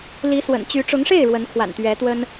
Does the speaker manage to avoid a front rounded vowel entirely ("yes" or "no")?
no